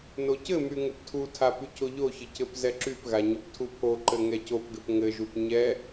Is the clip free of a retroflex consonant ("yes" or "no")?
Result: yes